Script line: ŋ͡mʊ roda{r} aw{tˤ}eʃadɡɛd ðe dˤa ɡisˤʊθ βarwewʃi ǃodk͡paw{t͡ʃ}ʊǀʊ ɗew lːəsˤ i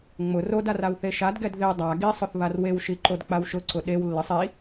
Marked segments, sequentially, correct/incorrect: correct, incorrect: θ, incorrect: ʃ

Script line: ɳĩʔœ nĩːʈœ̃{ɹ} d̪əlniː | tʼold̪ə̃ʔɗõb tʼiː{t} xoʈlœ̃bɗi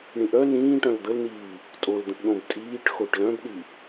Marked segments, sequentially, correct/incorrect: incorrect: l, incorrect: ʈ

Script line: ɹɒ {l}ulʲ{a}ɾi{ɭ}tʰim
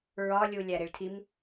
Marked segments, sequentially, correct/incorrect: incorrect: lʲ, incorrect: æ, correct

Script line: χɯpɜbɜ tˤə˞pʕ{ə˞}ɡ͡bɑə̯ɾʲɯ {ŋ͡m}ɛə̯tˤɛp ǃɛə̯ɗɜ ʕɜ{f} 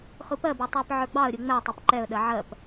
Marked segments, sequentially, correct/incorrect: correct, correct, incorrect: p

